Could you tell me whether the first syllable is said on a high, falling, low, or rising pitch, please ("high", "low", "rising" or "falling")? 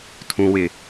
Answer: low